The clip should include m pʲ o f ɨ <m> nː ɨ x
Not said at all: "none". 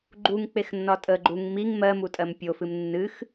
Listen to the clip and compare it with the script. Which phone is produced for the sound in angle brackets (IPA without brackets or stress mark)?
m